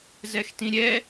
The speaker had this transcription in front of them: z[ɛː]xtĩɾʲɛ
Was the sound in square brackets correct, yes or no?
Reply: no